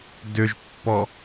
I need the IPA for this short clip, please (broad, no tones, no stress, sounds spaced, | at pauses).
d ʏ ʒ pː ɔ